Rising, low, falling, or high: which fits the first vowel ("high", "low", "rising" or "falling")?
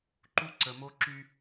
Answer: high